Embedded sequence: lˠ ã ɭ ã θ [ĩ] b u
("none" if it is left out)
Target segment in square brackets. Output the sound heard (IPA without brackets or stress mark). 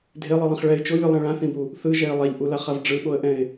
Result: ĩ